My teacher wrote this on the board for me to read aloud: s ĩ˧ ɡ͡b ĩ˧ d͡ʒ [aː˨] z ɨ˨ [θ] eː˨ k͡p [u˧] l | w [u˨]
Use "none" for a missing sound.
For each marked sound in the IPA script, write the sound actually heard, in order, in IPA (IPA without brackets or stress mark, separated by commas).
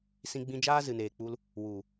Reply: aː˦, n, u˧, u˨